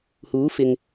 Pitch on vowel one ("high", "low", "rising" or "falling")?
rising